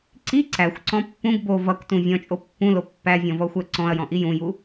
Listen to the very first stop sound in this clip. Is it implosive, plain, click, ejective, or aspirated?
click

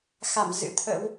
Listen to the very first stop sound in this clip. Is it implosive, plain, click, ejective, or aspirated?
aspirated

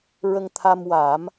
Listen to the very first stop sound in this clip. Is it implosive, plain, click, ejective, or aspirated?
aspirated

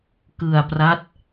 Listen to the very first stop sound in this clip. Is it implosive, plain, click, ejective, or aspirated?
plain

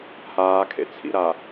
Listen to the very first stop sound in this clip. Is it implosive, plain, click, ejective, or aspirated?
aspirated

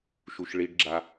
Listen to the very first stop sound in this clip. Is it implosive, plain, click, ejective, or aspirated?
plain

